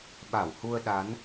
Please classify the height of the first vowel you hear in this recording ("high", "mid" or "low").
low